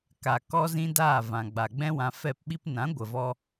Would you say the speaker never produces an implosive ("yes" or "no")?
no